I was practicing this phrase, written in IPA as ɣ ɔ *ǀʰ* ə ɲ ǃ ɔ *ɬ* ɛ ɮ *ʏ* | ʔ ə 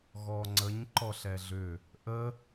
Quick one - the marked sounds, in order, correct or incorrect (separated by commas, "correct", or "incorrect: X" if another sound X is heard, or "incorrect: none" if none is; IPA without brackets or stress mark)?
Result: incorrect: ŋ͡ǀ, correct, correct